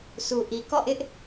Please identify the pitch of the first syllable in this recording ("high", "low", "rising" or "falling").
low